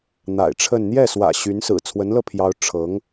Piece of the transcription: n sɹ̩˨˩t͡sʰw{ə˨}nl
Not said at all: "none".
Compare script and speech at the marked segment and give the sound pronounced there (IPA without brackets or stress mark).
ə˧˥